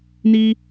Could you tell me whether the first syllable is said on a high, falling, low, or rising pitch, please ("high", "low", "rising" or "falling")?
high